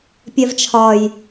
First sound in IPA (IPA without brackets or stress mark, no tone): pʲ